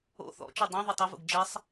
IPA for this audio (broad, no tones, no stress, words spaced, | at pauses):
o̰ θɔ̰t͡ʃu dˤɛ̃ ðˤutˤʊvṵɡ d͡ʒɛsˤ